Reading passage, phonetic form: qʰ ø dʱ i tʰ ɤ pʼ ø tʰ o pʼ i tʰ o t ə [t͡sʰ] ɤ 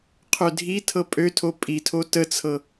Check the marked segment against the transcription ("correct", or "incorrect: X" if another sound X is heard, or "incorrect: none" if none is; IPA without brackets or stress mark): correct